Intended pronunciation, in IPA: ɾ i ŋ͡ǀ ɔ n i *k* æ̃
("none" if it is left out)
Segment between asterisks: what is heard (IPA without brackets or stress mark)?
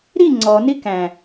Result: k